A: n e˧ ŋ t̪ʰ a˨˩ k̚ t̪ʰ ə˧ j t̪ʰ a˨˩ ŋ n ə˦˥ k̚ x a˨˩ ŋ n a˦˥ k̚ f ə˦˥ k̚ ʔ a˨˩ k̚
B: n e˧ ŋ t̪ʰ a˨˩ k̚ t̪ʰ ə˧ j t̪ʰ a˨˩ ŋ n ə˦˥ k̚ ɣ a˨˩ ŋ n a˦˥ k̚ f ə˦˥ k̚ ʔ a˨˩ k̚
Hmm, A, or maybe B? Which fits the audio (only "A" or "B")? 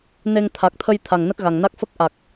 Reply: B